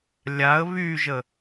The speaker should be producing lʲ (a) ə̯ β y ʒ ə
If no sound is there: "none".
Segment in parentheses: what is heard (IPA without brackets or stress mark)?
a